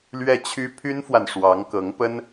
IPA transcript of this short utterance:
lɥɛ˥˩t͡ɕʰy˥ pʰy˥nfwa˨n ʂwɑ˧˥ŋkɤ˧˥ŋpə˥n

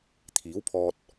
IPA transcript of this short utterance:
t̪ʰiː˨˥wpʰɔː˧t̚

